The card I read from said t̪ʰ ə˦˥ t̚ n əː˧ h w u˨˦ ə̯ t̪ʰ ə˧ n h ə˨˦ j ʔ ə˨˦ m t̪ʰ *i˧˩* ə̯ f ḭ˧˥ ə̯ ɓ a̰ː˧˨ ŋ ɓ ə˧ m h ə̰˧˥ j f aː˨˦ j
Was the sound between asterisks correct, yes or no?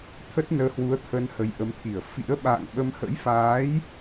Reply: yes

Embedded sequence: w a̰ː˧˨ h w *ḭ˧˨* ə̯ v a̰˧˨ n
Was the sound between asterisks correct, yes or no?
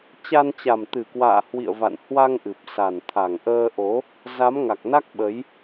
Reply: yes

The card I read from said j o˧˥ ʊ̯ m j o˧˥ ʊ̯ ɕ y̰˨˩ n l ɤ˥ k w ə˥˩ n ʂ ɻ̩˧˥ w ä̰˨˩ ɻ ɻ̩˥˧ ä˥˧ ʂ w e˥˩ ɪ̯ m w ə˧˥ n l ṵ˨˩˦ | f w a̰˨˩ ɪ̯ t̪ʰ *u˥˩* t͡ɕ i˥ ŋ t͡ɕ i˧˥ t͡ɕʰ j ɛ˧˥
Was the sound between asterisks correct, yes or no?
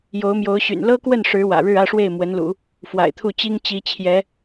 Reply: yes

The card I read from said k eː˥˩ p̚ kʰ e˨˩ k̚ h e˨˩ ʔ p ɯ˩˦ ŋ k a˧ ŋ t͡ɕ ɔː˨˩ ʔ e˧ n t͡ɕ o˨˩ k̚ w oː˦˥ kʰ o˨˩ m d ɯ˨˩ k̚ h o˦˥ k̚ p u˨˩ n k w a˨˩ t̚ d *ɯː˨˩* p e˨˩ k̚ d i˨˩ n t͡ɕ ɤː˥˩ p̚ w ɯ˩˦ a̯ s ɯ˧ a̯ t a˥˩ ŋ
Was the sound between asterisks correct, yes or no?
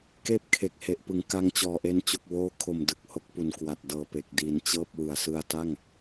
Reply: no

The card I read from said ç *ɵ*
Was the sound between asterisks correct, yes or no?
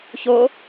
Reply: no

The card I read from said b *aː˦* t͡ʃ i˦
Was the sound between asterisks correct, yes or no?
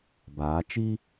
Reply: no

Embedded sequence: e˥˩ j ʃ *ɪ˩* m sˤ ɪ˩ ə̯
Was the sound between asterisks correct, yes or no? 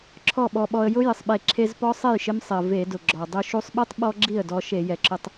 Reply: no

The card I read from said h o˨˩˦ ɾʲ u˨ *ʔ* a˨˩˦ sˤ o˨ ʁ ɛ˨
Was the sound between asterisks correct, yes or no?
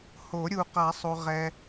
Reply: no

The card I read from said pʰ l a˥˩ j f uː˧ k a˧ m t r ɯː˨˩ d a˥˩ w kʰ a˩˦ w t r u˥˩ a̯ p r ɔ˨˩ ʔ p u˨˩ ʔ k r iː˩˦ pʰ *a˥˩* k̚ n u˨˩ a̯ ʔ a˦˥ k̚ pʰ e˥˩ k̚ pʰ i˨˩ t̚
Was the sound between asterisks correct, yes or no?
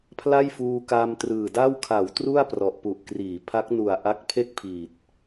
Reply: no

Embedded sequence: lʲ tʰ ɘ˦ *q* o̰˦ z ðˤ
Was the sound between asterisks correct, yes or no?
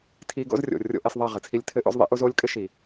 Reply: no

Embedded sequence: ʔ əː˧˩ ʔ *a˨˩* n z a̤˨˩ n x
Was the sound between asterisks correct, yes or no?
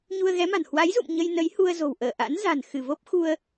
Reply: no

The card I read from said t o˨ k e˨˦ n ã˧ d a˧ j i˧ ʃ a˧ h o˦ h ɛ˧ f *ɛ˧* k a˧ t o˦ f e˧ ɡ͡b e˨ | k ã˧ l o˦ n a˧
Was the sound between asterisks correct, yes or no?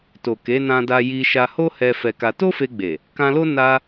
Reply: yes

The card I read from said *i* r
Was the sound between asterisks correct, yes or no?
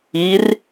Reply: yes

